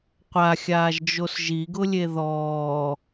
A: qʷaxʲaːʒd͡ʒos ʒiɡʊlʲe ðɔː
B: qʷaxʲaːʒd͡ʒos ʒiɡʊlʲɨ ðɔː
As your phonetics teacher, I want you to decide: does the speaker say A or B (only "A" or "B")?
A